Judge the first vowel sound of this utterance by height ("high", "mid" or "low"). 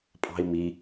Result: low